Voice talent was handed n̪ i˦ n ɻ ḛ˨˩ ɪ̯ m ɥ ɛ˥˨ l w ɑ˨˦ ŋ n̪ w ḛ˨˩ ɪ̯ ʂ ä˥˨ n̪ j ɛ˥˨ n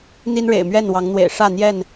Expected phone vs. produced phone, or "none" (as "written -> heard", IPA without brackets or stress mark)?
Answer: l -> n